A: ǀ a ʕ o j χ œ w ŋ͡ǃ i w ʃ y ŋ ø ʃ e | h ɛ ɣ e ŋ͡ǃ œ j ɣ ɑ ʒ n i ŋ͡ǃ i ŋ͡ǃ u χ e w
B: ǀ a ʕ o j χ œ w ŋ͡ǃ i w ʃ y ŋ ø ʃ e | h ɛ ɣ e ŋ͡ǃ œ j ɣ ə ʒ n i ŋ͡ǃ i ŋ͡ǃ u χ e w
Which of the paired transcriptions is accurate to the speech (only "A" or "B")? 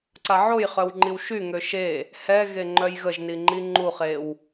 B